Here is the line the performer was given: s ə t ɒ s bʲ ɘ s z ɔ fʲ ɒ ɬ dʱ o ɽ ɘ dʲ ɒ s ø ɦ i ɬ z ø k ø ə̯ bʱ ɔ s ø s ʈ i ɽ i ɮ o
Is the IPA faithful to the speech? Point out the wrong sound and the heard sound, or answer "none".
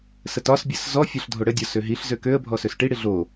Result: none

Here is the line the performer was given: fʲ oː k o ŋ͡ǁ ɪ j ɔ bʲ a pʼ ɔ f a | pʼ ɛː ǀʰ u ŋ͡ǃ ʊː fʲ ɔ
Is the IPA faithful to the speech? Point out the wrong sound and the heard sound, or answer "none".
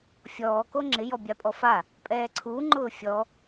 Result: oː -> ɔː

